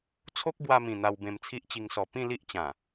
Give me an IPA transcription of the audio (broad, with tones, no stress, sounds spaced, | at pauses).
t͡sʰ o˦ k̚ b w a˧ m ĩ˨˩ n̪ a˧ w b ẽ˧ m t͡sʰ i˦ ʔ t͡ɕ i˧ ŋ s ɔ˨˩ p ĩ˥˧ l i˦ ʔ t͡ɕ ã˨˩